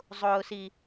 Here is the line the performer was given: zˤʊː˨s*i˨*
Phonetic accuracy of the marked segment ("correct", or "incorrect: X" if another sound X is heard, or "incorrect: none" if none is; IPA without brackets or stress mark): correct